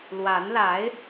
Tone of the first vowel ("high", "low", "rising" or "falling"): rising